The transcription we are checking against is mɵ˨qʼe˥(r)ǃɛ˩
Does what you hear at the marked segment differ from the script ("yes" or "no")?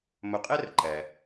no